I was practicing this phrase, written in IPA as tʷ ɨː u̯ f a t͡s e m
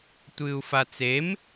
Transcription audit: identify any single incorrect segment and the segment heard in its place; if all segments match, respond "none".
none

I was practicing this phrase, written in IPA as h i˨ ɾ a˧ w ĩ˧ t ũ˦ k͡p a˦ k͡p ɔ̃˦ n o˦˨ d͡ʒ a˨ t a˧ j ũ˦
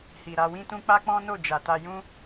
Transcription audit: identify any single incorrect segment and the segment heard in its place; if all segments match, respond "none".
ĩ˧ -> ĩ˦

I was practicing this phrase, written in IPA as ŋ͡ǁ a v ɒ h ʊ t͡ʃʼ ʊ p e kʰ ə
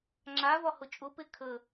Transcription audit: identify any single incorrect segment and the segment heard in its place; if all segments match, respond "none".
none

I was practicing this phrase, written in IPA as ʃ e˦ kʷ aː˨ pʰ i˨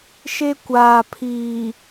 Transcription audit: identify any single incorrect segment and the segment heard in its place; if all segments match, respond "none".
i˨ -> iː˨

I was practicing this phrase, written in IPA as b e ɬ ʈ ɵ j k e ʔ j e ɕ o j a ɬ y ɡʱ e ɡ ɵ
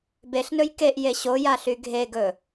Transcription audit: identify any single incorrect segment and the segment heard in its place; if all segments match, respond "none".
ʈ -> n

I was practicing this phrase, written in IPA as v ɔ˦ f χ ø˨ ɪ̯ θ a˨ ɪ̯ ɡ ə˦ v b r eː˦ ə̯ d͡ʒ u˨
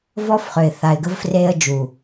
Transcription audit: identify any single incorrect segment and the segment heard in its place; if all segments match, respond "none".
b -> f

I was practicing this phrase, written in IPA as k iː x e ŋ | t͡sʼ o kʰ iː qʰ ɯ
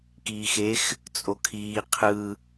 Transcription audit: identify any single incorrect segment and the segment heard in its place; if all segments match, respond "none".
ŋ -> x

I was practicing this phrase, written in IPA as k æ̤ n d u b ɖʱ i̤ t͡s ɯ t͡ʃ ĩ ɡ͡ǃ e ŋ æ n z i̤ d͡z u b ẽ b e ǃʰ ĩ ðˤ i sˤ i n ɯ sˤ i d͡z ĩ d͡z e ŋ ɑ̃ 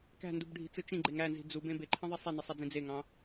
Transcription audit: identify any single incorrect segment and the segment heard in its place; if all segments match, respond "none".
none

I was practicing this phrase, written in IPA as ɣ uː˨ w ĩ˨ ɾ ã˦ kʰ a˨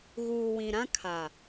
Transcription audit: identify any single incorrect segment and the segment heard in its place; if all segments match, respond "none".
none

